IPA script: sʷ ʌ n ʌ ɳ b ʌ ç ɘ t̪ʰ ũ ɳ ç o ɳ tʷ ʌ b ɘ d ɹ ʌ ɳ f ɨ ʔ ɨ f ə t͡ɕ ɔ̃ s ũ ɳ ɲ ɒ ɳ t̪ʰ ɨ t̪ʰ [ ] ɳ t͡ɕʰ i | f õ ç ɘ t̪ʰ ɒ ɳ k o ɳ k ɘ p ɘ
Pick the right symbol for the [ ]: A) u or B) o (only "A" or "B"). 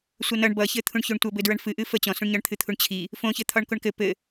A